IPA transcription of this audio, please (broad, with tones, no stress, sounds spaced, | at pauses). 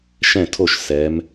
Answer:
ʃ ɛ̃˥˩ tʰ o˥˩ ʃ s ɛ˩˧ m